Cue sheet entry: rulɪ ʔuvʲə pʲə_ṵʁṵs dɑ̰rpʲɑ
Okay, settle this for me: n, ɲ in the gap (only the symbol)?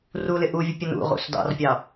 n